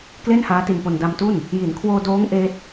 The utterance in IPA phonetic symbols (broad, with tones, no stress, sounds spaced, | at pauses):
k l e˥˩ n h aː˦˥ t i˧ n p o˧ n d a˧ m t u˥˩ n | j i˩˦ n kʰ w oː˧ d oː˦˥ ŋ ʔ eː˦˥ t̚